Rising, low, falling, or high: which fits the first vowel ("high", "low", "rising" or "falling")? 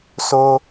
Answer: high